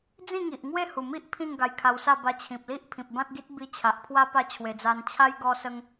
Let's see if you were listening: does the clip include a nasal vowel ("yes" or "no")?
yes